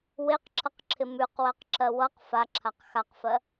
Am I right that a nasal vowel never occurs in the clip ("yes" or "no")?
yes